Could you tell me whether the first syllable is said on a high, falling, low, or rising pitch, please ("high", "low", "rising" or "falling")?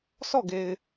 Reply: falling